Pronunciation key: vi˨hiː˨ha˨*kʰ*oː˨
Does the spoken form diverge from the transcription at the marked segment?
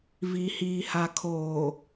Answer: no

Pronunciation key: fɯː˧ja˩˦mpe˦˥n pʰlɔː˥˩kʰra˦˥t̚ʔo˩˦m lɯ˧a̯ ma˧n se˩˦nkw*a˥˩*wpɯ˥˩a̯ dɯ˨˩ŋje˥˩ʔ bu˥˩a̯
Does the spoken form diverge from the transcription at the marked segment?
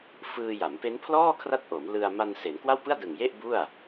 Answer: no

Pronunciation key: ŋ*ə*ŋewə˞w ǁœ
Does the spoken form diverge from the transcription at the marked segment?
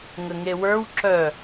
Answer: no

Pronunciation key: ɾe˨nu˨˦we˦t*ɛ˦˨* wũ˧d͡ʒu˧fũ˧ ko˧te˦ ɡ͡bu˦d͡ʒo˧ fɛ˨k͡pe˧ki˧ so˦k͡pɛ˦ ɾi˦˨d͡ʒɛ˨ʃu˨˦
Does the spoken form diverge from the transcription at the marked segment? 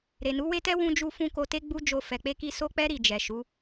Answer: yes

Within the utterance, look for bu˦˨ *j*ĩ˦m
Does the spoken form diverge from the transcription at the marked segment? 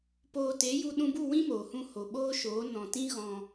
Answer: yes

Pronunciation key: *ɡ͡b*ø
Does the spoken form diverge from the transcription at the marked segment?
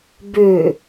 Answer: yes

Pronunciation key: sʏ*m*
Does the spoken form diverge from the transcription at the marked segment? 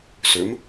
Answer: no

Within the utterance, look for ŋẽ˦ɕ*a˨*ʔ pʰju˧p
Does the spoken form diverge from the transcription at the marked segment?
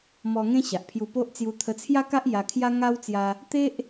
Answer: no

